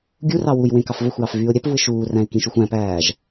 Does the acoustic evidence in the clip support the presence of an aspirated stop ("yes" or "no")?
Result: no